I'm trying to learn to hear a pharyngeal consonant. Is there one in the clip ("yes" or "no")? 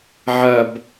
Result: yes